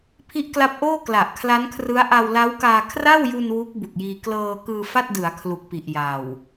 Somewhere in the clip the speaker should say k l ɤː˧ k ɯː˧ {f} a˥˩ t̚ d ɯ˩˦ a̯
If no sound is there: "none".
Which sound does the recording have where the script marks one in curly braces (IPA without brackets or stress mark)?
f